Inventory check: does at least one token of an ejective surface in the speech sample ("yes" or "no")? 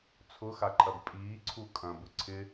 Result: yes